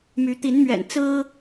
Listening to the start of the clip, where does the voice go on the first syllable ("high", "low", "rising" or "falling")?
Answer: rising